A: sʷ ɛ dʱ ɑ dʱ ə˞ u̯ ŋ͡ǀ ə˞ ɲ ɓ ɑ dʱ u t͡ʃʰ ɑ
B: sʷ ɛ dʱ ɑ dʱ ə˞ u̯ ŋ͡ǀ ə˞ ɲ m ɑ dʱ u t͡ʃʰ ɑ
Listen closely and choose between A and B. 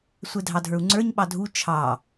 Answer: A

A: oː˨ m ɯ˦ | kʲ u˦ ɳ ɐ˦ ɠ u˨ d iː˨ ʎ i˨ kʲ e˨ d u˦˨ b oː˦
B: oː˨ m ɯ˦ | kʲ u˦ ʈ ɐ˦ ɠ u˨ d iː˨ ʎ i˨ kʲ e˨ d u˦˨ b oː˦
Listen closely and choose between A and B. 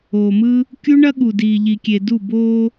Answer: A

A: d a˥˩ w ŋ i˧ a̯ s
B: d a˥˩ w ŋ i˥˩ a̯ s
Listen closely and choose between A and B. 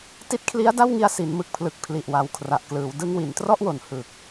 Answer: A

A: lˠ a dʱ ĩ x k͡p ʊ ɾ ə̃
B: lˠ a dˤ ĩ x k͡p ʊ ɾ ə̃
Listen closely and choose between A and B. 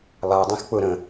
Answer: B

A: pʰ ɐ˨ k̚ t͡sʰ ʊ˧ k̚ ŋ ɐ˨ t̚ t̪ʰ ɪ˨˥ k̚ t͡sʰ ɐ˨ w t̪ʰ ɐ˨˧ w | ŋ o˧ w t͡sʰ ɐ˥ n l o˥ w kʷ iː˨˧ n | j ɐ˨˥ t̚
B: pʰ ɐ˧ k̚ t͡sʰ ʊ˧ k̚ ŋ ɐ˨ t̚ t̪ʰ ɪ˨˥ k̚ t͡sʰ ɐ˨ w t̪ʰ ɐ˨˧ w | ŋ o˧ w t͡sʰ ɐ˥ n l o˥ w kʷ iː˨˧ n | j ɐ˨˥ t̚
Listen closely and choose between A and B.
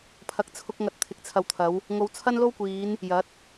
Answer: A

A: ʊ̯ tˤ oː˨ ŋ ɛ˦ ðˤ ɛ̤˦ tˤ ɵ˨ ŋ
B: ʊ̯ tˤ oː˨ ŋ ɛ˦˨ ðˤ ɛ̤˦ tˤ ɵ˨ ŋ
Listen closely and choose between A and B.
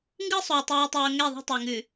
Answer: B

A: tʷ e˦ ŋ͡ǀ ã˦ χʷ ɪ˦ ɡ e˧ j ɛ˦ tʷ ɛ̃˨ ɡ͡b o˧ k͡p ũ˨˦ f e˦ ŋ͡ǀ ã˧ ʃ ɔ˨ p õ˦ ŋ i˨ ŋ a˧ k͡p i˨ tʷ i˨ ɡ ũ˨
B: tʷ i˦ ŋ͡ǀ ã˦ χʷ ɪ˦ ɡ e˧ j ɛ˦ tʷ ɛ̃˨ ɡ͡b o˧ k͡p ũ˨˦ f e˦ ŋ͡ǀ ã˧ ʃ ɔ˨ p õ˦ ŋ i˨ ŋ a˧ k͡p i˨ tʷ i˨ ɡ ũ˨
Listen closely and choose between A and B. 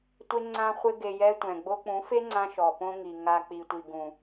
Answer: A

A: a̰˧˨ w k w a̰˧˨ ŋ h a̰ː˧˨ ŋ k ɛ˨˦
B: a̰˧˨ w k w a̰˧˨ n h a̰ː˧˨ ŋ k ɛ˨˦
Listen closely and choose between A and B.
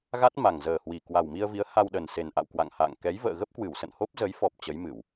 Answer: A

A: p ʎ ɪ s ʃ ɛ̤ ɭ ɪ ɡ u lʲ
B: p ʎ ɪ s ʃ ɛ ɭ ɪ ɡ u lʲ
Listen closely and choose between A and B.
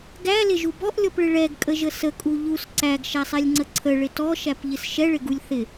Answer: B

